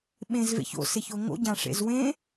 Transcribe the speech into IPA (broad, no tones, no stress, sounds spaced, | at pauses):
ɓ ẽ z v ḛ ç o̰ s e ç o ŋ o̰ ɟ ã ʂ ḛ z w ẽ